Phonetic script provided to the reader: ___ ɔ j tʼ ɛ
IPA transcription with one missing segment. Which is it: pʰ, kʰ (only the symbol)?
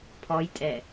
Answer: pʰ